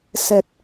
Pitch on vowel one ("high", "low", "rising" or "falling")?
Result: low